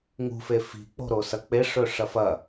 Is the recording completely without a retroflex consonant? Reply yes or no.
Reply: no